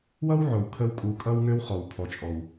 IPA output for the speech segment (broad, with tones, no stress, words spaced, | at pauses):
wʌ˥wʕo˩w kʰə˧w kʼu˩kʼʌ˧wŋø˧w χɔ˩wpʰɔ˩t͡ʃʼɔ˩w